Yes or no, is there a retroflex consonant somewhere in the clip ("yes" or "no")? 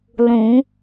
no